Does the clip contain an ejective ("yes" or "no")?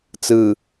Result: no